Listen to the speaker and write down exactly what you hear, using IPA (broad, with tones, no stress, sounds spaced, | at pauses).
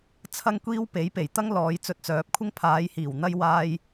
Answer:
t͡sʰ ɐ˥ ŋ kʷ iː˥ w p e˨˥ j p e˨˩ j t̪ ɐ˥ ŋ l ɔː˨˧ j t͡s ɵ˧ t̚ t͡s œː˨˥ p̚ kʷʰ ɪ˥ ŋ pʰ aː˨˧ j h iː˨˩ w n̪ ɐ˧ j w aː˧ j